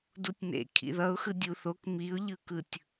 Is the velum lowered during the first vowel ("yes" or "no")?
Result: no